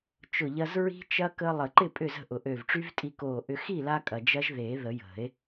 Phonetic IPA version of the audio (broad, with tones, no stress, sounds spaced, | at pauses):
t͡ʃ ʊ˧˩ ʎ ɐ˧ z ɹ i̤˦˥ t͡ʃ ɐ˦˥ k əː˧ lˠ ə˨˩˦ ǃ ɪ˥˩ pʼ ʏ˧˩ z ə̤˥˩ ʔ ʊ˨˩˦ ʔ ø˧˩ v ʈ͡ʂ y˦˥ v tʼ i˧ k oː˧˩ ʔ ʏ˧ x i˥˩ l a˧ kʼ ɐ˩ d͡ʒ ɐ˦˥ ʒ ð e˨˩˦ ð ə˨˩˦ j ə̤˨˩˦ e̯